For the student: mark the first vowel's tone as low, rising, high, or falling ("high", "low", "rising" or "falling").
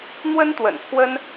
high